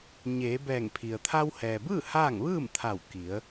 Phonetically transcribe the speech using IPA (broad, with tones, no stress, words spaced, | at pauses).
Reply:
ɲeː˩˧bɛː˧˩ŋpʰi˩ə̯ t̪ʰa˧whɛː˩bɯː˥˨ haː˥˨ŋ ʋɯː˥˨mt̪ʰa˧˩w ki˩˧ə̯